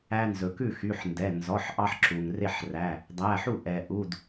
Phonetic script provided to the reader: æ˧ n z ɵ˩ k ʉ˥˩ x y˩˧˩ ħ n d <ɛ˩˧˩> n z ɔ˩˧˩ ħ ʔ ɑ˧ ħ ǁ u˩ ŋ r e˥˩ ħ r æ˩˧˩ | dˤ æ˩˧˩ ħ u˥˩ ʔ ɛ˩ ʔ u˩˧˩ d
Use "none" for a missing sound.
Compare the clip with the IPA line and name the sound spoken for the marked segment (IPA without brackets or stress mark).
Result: ɛ˩˧˩